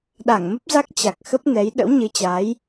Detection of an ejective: absent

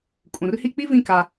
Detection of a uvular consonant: absent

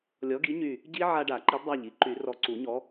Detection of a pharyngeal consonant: present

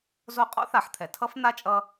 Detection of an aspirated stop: present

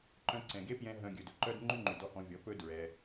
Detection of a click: present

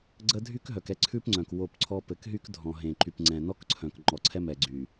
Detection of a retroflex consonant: absent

